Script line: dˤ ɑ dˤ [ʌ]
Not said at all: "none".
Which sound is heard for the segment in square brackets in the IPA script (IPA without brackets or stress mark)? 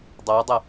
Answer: ʌ